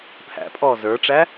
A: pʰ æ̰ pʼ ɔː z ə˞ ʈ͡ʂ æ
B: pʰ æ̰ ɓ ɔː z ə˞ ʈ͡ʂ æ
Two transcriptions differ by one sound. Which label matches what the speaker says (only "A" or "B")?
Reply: A